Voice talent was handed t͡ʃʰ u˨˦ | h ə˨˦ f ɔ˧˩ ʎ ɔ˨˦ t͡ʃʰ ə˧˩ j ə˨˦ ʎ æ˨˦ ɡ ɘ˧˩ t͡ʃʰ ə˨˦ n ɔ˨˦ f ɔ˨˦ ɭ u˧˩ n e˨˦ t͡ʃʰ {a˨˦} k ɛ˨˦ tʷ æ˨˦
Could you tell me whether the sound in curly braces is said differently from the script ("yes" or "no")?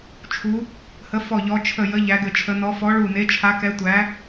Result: no